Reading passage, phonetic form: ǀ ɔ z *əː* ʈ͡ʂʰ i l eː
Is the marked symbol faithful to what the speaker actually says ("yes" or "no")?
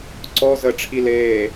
no